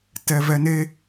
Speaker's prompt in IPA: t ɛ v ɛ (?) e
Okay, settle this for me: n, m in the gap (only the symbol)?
n